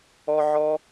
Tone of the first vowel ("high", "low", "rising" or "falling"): high